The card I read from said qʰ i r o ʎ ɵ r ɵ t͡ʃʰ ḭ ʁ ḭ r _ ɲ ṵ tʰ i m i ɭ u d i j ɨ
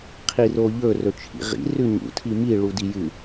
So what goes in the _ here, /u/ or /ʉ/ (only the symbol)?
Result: ʉ